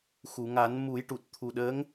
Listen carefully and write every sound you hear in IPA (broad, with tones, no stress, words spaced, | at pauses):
xu˨˩˨ŋa˨˩˦n mu˨˩˦jʈu˨˩t̚t̪ʰu˨˩ɗəː˧˥ŋ